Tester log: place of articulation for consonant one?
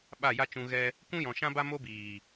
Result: labial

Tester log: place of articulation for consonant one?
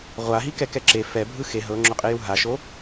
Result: uvular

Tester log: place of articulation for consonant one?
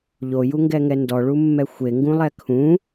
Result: palatal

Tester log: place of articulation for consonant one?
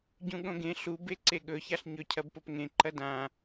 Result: palatal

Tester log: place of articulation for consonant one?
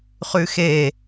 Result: uvular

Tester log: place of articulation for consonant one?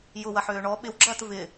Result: palatal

